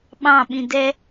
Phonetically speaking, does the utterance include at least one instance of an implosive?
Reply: yes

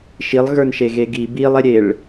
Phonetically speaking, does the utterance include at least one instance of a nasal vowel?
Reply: no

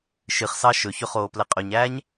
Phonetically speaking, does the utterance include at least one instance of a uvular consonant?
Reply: yes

